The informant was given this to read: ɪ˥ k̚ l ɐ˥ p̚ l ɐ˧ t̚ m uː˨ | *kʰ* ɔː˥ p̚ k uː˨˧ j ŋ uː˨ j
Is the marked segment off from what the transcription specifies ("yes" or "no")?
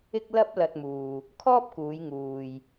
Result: no